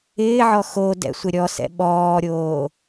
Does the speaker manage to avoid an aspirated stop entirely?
yes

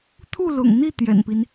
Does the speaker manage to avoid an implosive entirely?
yes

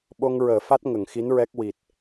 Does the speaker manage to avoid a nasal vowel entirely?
yes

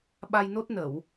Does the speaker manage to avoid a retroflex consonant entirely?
yes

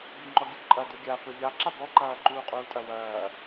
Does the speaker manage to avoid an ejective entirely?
no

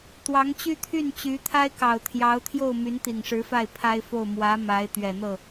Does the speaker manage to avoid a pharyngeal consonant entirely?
yes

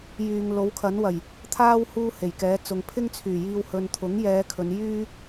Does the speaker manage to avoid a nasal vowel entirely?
yes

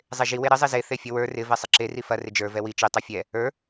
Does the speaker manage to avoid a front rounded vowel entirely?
yes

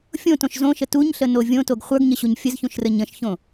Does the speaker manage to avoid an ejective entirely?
yes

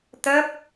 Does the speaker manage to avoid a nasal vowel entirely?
yes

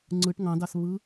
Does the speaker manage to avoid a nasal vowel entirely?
no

